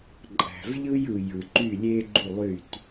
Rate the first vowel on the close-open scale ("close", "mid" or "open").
open